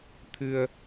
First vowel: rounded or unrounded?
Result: unrounded